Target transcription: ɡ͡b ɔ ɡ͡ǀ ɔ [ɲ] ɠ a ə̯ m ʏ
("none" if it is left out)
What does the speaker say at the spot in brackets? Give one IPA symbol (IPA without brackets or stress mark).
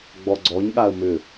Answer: ɲ